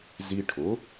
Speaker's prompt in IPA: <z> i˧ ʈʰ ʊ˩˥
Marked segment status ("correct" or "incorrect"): correct